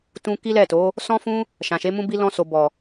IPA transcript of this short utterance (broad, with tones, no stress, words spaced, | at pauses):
tũ˧ ki˦lɛ˦˨to˨˦ | sɔ̃˦fũ˦ | ʃã˨ʃe˨˦mũ˦bi˦ lɔ̃˧so˨ bɔ˨